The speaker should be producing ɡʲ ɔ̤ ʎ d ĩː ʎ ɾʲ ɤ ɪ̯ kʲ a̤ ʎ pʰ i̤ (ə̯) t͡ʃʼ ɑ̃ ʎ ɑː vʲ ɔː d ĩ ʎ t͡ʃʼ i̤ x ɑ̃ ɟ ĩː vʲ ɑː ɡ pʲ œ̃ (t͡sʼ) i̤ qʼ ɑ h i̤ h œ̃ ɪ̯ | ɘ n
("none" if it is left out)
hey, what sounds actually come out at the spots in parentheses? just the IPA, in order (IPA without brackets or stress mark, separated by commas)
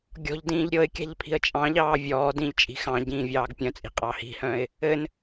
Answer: ə̯, t͡sʼ